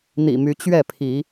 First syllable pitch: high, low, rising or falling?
low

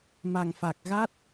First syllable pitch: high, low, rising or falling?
low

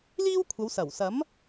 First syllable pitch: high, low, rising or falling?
high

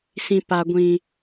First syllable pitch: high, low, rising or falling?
low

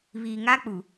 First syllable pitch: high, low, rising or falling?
low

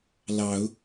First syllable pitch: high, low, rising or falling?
rising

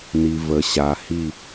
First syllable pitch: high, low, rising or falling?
low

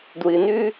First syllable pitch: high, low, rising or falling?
low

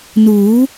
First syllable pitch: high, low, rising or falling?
rising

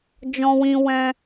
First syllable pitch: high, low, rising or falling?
high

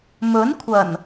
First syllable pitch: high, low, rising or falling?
rising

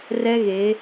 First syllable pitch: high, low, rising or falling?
high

